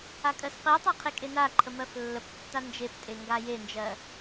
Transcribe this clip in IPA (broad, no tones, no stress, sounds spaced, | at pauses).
a kʼ ɜ s q e tˤ a qʰ e kʼ e n a ǃʰ ə m ɜ f lː ə p tː a n d͡ʒ e p tʼ e ŋ ɡ a j e n d͡ʒ ɜ